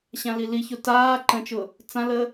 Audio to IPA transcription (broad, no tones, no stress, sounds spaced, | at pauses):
ɕ ã l i l i ç o t aː ǃ ə̃ t͡ʃ ʊ | t͡s ã l ə